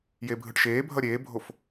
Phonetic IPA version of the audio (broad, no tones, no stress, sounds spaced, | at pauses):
j eː bʱ ɯ ʈ ʃ eː bʱ ʌ ɾʲ eː bʱ o f